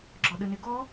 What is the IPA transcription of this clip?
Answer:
ɡ͡ǁ ɔ ɗ ə n e ɡ ɔ

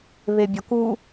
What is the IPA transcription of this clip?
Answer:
β e bʲ ɒ k u

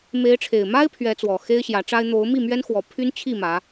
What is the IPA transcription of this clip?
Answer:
m e˨˦ ɪ̯ ʈ͡ʂʰ e˨˩ ɪ̯ m a˦ ɪ̯ pʰ ɥ ɛ˨˦ t͡s w ɔ˨˩ x e˦ ɪ̯ ɕ j ä˨˦ ʈ͡ʂ a˦ ɪ̯ n̪ o˨˦ ʊ̯ m i˥˨ m ɥ ɛ˦ n x w ɔ˨˦ pʰ y˦ n t͡ɕʰ i˥˨ m ä˨˦

